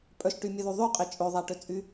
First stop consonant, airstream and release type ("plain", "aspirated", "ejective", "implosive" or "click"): ejective